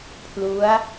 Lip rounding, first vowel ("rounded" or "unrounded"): rounded